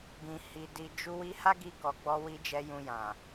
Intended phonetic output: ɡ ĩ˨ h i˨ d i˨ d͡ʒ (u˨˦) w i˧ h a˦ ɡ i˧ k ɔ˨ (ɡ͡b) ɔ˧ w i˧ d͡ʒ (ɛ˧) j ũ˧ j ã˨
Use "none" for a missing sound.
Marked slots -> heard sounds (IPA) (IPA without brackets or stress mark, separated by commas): u˧, ɡ͡b, ɛ˧